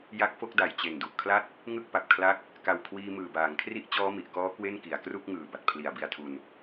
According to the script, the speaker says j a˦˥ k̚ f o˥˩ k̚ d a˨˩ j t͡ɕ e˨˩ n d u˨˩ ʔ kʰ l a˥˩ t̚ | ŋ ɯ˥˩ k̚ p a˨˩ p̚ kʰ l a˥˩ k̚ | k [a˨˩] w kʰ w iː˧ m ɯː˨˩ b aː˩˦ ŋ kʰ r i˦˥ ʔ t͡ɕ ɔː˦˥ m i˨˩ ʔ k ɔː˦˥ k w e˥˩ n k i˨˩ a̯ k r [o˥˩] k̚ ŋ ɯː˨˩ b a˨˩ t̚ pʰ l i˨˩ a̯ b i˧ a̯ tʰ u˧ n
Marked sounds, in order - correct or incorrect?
correct, incorrect

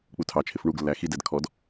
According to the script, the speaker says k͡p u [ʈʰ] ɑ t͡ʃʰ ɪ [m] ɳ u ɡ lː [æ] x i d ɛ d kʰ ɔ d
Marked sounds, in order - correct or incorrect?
incorrect, incorrect, correct

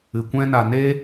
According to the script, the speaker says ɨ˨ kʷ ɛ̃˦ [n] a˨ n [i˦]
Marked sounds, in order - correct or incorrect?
correct, incorrect

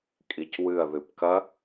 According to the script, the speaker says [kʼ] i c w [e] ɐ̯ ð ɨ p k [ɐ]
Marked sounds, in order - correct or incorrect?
correct, incorrect, correct

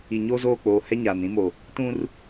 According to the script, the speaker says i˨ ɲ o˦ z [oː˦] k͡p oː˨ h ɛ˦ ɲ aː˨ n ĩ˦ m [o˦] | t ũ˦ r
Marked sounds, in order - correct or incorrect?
incorrect, incorrect

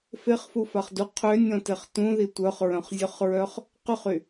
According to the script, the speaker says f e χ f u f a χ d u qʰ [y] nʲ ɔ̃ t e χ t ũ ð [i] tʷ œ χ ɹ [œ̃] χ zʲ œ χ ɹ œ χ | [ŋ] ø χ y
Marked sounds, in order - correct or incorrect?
incorrect, correct, correct, incorrect

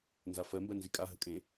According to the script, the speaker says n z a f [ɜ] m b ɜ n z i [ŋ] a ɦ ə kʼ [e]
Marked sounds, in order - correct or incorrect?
correct, incorrect, incorrect

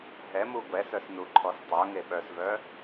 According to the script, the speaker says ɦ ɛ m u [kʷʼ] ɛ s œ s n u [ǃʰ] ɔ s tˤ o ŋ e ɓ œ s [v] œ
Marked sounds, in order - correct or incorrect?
incorrect, correct, correct

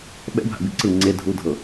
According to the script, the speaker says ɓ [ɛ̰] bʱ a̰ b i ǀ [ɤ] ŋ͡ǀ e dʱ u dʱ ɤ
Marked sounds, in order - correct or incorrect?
correct, incorrect

